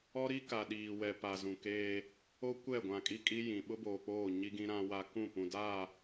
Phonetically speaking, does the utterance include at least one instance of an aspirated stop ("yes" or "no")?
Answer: no